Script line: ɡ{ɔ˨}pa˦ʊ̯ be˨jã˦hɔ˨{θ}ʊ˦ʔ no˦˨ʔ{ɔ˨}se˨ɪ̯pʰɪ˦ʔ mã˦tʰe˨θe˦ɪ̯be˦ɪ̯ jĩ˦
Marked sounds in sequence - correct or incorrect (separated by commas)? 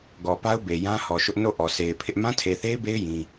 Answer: correct, incorrect, correct